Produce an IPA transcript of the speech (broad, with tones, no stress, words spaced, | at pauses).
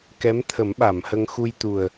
kɛ˧˥mt̪ʰə˨˩˦mɓa˨˩˨mhə˧ŋ xu˧jt̪u˨˩ə̯